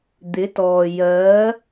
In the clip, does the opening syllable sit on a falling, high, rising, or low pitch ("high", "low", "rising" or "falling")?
rising